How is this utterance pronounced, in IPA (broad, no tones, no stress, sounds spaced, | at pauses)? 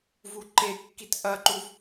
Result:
v u ǃ e kː i t ʔ ɐ ǃ u v